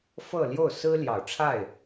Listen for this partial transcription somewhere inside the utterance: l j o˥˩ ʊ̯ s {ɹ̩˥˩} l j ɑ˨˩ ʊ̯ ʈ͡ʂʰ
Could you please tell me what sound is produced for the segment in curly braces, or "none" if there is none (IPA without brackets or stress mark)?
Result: ɹ̩˥